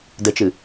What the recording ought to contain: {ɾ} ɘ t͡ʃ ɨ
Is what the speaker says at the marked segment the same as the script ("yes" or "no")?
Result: no